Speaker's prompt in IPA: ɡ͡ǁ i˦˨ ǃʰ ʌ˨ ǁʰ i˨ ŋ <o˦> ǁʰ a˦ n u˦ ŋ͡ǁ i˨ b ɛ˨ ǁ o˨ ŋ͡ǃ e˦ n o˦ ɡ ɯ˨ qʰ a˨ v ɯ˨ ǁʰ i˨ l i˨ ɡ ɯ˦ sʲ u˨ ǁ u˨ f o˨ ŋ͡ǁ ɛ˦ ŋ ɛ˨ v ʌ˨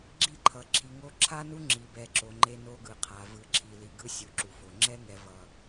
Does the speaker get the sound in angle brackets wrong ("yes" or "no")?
no